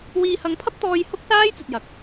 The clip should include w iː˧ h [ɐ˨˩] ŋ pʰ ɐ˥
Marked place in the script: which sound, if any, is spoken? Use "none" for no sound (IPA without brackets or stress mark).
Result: ɐ˧